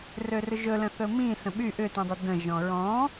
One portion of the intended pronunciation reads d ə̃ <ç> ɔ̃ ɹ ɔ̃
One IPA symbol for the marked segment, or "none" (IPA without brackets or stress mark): ʒ